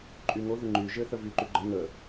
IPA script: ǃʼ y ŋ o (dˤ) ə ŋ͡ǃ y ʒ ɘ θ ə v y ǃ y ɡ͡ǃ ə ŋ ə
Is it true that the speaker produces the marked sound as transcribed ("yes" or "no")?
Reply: no